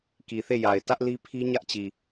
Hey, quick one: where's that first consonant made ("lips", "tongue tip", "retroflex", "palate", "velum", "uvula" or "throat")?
velum